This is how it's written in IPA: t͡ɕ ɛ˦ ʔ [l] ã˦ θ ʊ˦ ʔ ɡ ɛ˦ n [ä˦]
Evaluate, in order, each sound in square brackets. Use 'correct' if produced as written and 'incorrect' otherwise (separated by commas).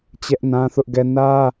incorrect, correct